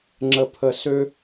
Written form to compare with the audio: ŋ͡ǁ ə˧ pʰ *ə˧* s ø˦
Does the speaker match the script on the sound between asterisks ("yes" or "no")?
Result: yes